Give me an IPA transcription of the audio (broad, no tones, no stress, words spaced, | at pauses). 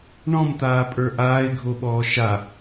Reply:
ɳɔ̃mt̪aːpʼə˞ ʔaːɪ̯ɡʱoɓɔː ʃa